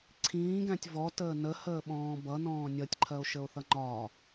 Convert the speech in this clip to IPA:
ǀʰ ĩː ɡ æ̃ tʲ v ɔ t əː n ə h əː ɓ ɔ̃ː b ʌ n ɔ̃ː nʲ ʌ tʲ ǃʰ ɜ o̯ ʃ ə o̯ θ ʌ ŋ͡ǃ ɒ

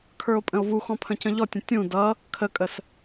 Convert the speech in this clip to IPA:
kʰ ə˞ o̯ pʼ ə̃ o̯ v u x ɔ̃ pʰ ə̃ c ə̃ ʎ ɔ tʲ ə̃ tʲ ũ d ʌ | kʰ ə kʼ ə s

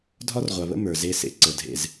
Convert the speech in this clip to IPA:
dʱ ɒ˦ r ʁʷ a˨ β ə̰˦ m ə˞˨ z e˦ s ḛ˨ ǀ ə˨˦ dʱ ḛ˦˨ z

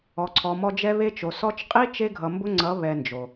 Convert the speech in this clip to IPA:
ɔ˨ ǀʰ ɔ˨ m ɔ˧ d͡ʒ ɛ˦ β e˦ t͡ʃ o˨ s ɔ˧ t͡ʃ qʼ i˦ t͡ʃ e˦ ɡʱ ʌ˨ m b ʊ˦ ŋ͡ǀ ʌ˨˦ β ɛ˧ n d͡ʒ o˨

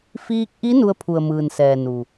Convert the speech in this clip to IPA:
f iː˧ k̚ ʔ i˧˥ n u˧ ə̯ pʰ u˩ ə̯ m ɯː˩ n s ɛː˩ n u˩

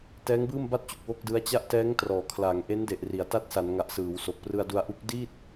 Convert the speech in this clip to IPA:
t ɛː˦˥ ŋ b ɯː˥˩ m b a˥˩ t̚ t͡ɕ u˨˩ k̚ w o˥˩ k̚ d ɯ˦˥ a̯ t͡ɕ a˥˩ ʔ t ɛː˦˥ ŋ t r ɔː˨˩ kʰ l a˩˦ ŋ ʔ e˦˥ n d e˨˩ ʔ r i˨˩ a̯ t a˦˥ t̚ s a˩˦ n ŋ a˨˩ ʔ s ɯː˩˦ w s o˨˩ k̚ p r ɯ˧ a̯ d u˧ a̯ ʔ u˦˥ k̚ d i˥˩ t̚

